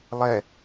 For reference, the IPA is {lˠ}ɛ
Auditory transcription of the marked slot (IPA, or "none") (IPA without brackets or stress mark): lˠ